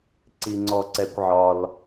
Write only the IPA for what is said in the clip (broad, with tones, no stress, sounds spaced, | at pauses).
ǀ i˨ ŋ͡ǀ ɔ˨ ǀ ɛ˨ kʷ ʕ ɒ˨ l